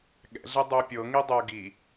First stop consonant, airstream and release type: implosive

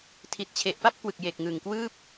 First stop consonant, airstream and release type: aspirated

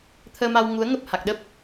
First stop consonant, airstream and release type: aspirated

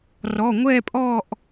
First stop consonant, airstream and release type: ejective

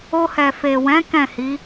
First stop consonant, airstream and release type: plain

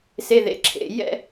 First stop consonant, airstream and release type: click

